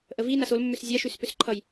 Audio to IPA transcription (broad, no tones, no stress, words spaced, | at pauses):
ʔəvi nasolmːʏs zʲaʃʉspʏs ǃʰʌj